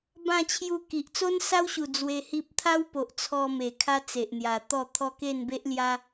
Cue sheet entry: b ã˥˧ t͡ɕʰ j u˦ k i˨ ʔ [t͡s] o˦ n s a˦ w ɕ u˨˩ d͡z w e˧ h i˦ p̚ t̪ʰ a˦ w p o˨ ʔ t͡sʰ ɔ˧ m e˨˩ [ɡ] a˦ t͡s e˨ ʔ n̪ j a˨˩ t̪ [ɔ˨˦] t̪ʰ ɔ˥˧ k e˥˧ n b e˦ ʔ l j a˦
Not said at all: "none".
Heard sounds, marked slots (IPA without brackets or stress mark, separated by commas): t͡s, kʰ, ɔ˥˧